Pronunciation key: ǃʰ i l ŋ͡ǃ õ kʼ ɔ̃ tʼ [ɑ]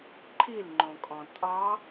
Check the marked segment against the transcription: correct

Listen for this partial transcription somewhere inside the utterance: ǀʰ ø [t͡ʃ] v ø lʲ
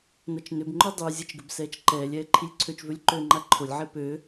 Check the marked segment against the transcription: correct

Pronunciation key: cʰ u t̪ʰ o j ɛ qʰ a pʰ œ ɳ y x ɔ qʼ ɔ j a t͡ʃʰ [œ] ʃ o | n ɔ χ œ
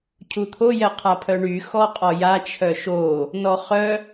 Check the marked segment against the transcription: correct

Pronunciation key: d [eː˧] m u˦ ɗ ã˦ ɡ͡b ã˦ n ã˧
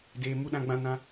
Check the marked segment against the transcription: correct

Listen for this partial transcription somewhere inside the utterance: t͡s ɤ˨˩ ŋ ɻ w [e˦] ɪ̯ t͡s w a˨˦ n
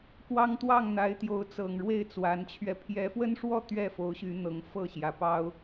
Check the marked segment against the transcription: incorrect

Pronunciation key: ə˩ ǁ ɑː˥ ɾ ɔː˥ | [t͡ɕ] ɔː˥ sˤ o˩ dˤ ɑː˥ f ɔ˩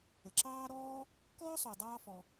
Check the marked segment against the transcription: incorrect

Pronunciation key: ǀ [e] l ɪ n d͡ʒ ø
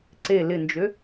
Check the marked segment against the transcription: correct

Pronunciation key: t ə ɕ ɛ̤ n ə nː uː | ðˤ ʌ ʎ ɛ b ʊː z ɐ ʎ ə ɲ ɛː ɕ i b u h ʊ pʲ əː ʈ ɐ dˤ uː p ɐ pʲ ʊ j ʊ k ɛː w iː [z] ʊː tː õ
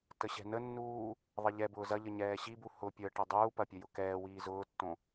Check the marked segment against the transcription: correct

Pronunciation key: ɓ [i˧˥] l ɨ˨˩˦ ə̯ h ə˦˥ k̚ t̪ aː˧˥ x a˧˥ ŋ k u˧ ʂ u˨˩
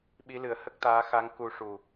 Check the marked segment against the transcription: correct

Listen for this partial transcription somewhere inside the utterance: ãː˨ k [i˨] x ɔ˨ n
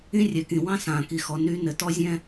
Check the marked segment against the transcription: correct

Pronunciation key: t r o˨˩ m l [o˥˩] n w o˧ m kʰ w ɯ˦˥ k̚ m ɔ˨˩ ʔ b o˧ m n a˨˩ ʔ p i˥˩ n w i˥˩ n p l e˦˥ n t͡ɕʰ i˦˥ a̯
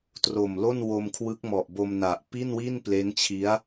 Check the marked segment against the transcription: correct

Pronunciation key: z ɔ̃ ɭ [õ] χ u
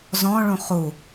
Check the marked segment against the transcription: incorrect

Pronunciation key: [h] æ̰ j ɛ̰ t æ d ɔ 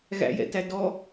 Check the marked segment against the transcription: incorrect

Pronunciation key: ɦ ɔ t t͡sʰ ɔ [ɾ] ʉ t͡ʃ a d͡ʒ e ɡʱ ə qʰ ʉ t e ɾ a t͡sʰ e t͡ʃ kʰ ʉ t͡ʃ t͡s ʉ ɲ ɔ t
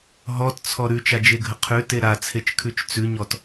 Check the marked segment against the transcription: correct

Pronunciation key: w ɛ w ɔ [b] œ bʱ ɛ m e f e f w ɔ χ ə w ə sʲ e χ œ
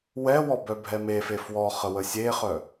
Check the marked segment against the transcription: correct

